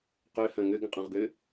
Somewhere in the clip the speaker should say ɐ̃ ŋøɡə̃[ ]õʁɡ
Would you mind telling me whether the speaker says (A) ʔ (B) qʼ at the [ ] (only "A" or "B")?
B